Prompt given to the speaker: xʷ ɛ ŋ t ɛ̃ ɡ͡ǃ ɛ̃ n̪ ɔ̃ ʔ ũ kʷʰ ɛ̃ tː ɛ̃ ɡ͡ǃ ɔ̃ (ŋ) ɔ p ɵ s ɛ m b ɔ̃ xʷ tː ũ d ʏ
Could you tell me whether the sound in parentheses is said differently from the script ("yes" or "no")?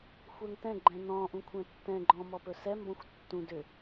yes